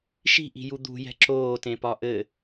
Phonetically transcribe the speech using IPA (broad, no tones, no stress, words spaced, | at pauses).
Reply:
ʃi̤ʔi̤ju d̪ṳjɛ̤ ǁoːtẽpɒ ʔɘ